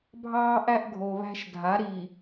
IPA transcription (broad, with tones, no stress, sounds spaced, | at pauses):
bʱ ɑː˦ ʔ æ˦ ʔ ɡʱ o˨ β æ̤˦ ʃ dʱ a˨˦ ɾ i˨